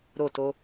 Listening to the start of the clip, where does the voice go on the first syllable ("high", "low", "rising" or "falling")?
falling